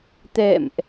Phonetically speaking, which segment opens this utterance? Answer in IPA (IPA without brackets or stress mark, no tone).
t̪